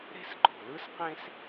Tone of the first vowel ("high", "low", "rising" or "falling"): high